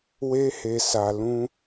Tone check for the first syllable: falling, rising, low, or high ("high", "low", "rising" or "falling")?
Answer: high